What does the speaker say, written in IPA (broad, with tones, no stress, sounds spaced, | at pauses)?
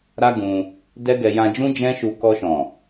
ɾ a˦ ɡ ũ˧ | d ɛ˦ ɡ ɛ˧ j ã˧ d͡ʒ ũ˦ d͡ʒ ɛ̃˦ ʃ u˧ k ɔ˧ ʃ ɔ̃˨